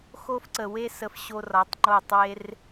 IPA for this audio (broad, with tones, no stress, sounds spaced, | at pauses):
x o˧ f ǀ ə˨ w e˦ s ə˧ f ɕ o˧ r ɒ˨˦ tˤ ŋ͡ǃ o˦˨ tˤ w e˦ r